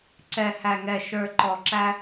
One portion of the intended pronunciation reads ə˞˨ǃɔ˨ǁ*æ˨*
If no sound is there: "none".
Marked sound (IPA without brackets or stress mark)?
æ˧